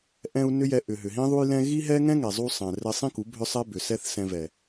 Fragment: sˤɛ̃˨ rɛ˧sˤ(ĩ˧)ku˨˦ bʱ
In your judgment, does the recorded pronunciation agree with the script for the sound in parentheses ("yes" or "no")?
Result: no